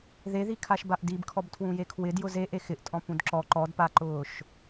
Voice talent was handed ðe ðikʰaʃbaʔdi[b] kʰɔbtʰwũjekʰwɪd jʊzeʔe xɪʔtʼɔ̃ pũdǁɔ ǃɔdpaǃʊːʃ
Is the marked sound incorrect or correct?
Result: correct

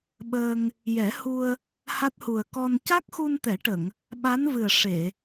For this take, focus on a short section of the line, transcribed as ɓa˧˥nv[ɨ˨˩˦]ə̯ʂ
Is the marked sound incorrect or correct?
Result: incorrect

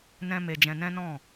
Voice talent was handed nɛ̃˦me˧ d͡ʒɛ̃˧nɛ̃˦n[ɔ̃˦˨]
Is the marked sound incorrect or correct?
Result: correct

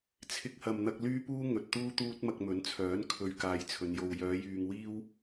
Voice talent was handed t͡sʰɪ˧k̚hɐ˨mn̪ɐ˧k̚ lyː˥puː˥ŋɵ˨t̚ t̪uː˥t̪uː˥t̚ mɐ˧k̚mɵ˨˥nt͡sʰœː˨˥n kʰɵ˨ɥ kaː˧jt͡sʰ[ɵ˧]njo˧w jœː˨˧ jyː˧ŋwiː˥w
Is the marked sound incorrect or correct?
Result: incorrect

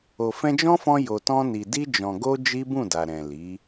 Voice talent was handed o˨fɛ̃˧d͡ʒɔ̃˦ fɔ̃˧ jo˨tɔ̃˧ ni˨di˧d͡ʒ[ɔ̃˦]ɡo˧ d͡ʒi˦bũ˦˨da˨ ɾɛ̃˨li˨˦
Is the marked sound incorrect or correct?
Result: incorrect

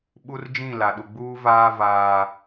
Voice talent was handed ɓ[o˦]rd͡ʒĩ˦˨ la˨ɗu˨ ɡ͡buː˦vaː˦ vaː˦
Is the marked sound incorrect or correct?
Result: incorrect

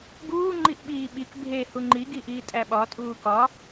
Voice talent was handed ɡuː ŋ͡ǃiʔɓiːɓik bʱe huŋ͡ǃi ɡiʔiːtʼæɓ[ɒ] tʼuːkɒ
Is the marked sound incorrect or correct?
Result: correct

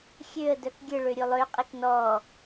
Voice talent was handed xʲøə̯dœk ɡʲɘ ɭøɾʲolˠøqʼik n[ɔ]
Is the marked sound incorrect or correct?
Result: correct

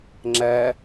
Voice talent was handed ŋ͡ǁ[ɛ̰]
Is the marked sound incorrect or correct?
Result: incorrect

